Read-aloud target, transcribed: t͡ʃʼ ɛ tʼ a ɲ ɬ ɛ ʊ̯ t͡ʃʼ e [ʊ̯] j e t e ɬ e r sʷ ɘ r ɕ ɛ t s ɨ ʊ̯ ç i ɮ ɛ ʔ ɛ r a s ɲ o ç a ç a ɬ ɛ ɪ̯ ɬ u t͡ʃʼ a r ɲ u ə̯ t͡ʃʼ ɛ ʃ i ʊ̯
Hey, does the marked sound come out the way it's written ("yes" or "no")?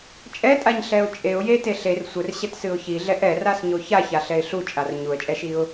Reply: yes